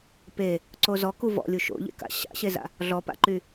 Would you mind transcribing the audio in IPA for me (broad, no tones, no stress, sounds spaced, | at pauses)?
p e | ǀ o z ɔ k u v ɔ̰ lʲ u ʃ o̰ ʎ ḛ k a̰ ɕ a̰ ɕ e z a̰ | ɮ ɔ p a̰ ǃ y